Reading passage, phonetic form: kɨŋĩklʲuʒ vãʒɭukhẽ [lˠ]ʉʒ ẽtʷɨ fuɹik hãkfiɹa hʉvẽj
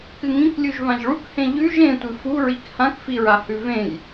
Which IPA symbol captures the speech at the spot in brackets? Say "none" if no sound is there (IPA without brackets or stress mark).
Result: ʎ